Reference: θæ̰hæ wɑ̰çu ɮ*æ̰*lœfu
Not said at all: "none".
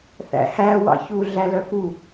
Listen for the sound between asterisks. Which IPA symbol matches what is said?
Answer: æ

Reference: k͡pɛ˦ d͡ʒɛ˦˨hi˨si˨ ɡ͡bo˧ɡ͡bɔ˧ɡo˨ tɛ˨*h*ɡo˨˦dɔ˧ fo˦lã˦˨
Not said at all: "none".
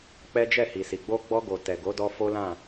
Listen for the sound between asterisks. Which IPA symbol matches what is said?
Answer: none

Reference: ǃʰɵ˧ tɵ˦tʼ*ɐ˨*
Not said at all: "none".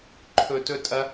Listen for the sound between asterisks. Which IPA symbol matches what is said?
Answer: ɐ˦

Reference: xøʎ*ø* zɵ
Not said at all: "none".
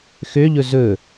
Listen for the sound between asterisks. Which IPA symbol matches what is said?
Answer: ɵ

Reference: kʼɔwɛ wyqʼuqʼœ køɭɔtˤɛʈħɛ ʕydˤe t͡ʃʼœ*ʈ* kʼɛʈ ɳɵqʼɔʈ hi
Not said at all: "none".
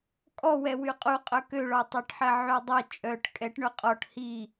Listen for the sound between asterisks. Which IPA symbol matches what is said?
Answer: ʈ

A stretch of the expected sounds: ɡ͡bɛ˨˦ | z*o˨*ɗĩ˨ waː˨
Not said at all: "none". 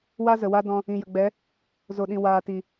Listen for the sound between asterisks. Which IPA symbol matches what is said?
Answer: o˨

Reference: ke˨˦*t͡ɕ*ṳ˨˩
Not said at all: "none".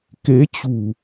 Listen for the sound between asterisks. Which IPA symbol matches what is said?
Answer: t͡ɕ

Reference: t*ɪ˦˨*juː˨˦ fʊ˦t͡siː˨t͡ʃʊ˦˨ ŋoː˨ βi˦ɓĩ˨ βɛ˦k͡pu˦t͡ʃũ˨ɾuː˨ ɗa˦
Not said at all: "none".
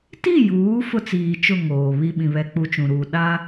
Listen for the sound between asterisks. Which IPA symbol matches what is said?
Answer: i˦˨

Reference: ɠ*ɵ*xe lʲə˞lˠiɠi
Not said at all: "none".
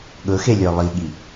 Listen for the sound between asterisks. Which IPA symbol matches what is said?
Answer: ɵ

